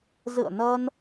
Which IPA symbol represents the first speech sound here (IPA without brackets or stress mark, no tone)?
z